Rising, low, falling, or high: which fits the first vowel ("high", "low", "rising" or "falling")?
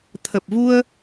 low